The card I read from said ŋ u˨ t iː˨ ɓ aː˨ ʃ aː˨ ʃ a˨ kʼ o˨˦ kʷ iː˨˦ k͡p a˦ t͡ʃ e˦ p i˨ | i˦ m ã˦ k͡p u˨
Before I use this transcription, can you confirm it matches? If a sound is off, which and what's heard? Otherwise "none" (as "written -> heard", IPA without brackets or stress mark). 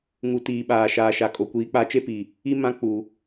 none